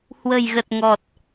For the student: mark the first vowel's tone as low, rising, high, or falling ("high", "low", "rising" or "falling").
low